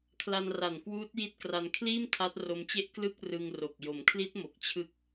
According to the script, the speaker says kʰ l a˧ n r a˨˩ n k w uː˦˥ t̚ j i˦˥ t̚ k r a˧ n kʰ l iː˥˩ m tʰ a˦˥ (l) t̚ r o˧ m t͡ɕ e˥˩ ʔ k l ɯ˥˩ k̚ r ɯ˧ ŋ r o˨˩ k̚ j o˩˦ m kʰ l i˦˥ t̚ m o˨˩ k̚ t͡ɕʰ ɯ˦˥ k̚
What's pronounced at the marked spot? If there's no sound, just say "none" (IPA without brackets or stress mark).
none